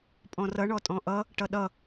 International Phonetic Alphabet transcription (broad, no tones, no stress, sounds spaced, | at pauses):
pʼ ɔ̃ r ʌ ɳ ɔ tʼ ɔ̃ ʔ ʌ | ʈ ʌ ɗ ʌ